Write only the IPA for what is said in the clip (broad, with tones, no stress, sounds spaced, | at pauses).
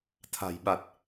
t̪ʰ a̤˨˩ j ɓ a˨˩ t̚